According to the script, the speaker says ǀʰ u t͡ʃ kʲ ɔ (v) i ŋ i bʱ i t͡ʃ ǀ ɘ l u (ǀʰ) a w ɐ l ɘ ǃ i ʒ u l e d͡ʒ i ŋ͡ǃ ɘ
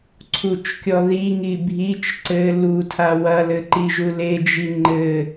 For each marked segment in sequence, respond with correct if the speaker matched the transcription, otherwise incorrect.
incorrect: ð, incorrect: tʰ

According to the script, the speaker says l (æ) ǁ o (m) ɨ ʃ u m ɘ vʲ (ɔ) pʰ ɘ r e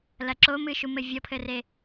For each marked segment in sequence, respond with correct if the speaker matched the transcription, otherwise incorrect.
incorrect: ɐ, correct, correct

